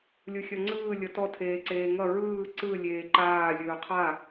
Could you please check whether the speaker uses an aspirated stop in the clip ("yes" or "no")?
yes